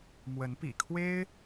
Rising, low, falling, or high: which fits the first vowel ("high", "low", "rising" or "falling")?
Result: rising